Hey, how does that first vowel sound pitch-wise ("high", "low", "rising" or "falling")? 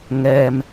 low